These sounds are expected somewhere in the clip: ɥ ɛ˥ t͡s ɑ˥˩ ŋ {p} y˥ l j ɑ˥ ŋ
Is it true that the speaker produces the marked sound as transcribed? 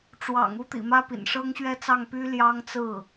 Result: yes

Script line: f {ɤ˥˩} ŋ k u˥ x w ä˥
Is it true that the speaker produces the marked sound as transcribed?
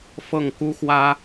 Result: yes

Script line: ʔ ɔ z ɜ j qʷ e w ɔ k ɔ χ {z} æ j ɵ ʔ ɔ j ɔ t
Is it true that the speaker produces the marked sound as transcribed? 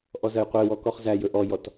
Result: yes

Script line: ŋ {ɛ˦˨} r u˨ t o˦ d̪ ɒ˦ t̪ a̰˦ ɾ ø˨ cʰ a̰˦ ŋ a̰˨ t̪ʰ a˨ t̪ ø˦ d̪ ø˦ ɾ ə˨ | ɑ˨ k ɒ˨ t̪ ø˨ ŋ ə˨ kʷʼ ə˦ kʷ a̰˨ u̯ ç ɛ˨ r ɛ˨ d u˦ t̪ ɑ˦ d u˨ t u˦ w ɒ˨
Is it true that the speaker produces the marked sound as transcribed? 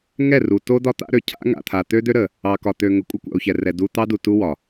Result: yes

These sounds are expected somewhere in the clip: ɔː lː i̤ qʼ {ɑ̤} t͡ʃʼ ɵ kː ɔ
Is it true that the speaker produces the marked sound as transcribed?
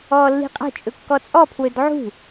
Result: no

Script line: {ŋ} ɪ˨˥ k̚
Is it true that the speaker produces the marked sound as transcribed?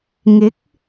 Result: yes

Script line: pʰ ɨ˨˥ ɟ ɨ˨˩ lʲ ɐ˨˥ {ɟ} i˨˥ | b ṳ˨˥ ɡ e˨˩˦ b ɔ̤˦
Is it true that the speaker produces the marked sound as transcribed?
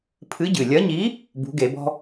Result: no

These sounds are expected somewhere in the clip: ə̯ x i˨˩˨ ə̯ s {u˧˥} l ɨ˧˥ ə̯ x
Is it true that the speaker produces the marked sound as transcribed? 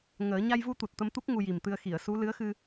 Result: yes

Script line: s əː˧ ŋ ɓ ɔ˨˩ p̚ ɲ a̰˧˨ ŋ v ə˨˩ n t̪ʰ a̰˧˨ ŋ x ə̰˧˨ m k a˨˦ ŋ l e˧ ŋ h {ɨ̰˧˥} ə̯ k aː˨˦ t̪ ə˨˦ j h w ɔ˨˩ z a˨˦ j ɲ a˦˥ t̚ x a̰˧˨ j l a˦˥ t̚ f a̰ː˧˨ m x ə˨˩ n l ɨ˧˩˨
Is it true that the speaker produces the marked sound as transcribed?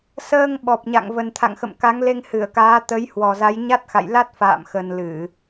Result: no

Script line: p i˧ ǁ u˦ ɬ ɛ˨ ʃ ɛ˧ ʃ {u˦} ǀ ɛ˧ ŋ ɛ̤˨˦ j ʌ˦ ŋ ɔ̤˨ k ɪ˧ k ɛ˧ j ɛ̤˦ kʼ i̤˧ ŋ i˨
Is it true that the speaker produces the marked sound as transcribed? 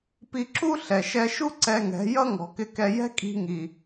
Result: yes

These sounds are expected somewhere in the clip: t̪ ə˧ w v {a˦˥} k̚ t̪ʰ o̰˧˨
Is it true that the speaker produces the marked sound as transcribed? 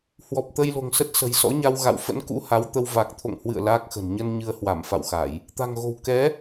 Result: no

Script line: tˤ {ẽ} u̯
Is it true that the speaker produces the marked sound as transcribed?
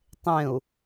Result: yes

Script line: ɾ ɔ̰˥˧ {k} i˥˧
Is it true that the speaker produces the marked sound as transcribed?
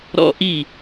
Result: no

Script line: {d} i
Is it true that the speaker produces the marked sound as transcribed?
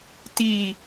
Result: no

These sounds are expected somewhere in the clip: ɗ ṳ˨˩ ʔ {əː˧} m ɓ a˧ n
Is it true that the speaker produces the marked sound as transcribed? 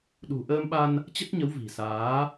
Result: yes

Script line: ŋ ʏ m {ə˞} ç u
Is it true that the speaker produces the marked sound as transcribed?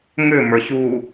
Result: yes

